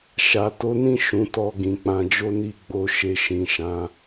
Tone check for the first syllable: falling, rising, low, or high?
low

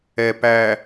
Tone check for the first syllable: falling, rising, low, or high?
low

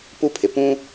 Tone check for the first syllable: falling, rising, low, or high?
high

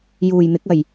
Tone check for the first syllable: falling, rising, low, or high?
low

